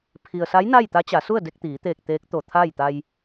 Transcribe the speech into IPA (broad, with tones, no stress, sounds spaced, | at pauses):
pʰ i˩ ə̯ s a˧˥ j n a˥˨ j t̪ a˧˥ t͡ɕ a˩˧ s u˥˨ ə̯ d e˧ k̚ t̪ iː˩˧ t̪ eː˧˩ k̚ t̪ eː˧˥ k̚ t̪ o˧˩ t̪ʰ a˥˨ j t̪ a˧ j